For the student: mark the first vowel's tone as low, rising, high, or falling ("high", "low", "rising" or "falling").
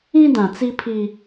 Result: high